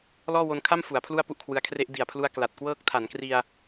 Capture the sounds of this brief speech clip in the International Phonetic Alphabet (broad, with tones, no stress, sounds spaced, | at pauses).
l ɔː˥˩ w o˧ n kʰ a˥˩ m f u˩˦ a̯ pʰ l u˥˩ a̯ p u˥˩ ʔ kʰ w ɯ˧ a̯ kʰ r e˦˥ ʔ d i˨˩ a̯ pʰ l u˧ a̯ k l a˨˩ t̚ k w ɤː˦˥ k̚ tʰ a˩˦ n k r i˧ a̯